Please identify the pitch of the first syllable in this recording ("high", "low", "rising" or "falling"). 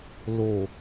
low